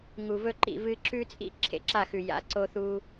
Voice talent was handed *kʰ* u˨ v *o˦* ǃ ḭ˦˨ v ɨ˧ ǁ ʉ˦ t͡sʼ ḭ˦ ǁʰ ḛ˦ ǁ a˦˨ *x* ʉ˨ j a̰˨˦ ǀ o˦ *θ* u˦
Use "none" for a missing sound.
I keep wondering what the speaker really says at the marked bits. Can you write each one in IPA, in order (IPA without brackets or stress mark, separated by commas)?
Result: ŋ, ɵ˦, x, θ